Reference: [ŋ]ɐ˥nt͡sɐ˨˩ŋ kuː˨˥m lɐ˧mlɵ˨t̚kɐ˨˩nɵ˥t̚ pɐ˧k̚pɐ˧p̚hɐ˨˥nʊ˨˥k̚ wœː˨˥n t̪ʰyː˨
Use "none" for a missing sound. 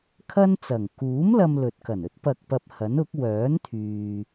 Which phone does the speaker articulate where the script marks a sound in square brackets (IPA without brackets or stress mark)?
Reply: kʰ